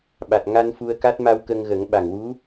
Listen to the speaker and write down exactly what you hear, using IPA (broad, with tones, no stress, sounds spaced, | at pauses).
ɓ a˨˩ t̚ ŋ a˧ n f u˧ ə̯ k a˦˥ t̚ m a˧ w k ə˧ ŋ ɣ ə˨˩˦ ŋ ɓ a˨˩ ŋ w u˧˥